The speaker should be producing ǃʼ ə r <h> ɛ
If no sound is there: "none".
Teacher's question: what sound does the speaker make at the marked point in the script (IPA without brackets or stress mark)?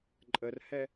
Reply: h